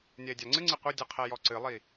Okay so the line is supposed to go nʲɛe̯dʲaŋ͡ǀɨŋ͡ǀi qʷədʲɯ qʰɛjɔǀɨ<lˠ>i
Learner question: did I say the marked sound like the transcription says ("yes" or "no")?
yes